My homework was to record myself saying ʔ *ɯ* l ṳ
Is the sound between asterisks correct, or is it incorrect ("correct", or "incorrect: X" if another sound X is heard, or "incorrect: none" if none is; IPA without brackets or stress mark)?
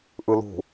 correct